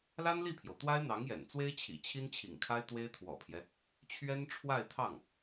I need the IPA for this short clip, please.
la˥nli˥˩pʰjo˩ʊ̯t̪wa˥ɪ̯ n̪ɑ˧˥ŋjɛ̰˨˩nt͡swe˥ɪ̯t͡ɕʰḭ˨˩ t͡ɕʰi˥nt͡ɕʰḭ˨˩ŋkʰa˥ɪ̯ t̪we˥ɪ̯t̪ʰwɔ̰˨˩pʰjɛ˦ | t͡ɕʰɥɛ˥nʈ͡ʂʰwa˥˧ɪ̯t̪ʰɑ˥˩ŋ

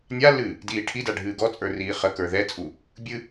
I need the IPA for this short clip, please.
nʲalːɨː | diːʈʰida ɖʱɨːɡɔt͡sʼə˞ riːχəkə˞ ðɛt͡sʼu | bʲɨ

